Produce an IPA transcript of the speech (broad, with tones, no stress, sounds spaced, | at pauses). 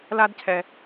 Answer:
l a˦ d cʰ ɛ˨